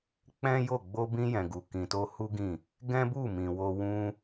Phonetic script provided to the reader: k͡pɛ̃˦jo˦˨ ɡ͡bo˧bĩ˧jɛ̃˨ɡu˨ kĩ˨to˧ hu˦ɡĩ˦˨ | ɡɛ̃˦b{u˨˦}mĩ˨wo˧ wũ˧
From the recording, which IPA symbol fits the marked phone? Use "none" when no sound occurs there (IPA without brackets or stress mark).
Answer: u˦˨